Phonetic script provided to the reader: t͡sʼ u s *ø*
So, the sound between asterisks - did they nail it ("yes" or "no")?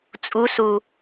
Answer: no